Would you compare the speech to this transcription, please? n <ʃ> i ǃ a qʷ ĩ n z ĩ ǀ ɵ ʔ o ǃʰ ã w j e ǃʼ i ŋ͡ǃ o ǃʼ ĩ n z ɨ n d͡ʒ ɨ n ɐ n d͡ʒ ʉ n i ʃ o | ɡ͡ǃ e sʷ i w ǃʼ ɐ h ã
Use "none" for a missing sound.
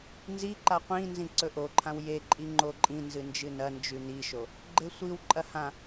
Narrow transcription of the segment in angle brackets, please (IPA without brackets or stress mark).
z